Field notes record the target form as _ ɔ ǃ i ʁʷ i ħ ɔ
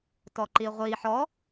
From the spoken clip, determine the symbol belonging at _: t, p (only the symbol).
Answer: t